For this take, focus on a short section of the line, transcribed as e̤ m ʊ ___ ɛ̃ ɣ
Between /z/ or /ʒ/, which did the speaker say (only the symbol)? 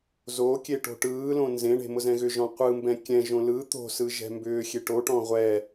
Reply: z